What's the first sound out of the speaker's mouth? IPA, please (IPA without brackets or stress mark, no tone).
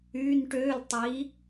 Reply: yː